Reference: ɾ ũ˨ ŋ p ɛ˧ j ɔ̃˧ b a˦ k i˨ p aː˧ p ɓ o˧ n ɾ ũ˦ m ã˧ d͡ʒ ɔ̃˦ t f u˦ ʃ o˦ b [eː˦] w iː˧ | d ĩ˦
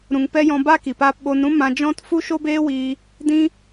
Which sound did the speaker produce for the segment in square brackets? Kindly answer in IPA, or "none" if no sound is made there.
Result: eː˦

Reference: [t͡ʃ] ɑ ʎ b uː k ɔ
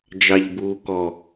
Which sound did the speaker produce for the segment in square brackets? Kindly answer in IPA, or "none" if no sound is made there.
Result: d͡ʒ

